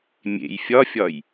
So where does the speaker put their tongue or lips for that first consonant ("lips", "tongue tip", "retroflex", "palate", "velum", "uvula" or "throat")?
lips